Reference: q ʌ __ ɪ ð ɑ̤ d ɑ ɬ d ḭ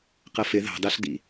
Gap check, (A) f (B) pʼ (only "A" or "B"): A